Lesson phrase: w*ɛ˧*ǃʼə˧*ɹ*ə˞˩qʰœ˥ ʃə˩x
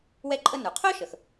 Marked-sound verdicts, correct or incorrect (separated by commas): correct, incorrect